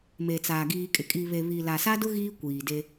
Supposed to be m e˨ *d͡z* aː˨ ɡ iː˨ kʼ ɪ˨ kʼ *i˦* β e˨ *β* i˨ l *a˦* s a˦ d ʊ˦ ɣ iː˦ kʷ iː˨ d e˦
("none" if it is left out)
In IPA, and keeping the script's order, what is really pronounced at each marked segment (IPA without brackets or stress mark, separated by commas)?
t͡s, i˨, β, a˨